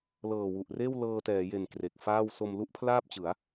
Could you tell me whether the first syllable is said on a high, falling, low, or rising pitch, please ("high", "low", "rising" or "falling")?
low